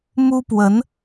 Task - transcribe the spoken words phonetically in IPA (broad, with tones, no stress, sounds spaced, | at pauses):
m u˥ p w ə˧˥ n